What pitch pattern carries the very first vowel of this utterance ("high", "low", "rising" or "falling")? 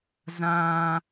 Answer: low